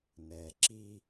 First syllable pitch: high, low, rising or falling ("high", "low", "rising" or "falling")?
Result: low